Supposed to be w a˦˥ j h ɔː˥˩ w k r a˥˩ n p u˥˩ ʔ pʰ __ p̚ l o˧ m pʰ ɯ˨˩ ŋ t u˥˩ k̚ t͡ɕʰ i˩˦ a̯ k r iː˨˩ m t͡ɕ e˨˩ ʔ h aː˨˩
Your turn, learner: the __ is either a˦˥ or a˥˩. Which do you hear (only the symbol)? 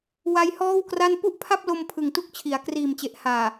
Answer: a˥˩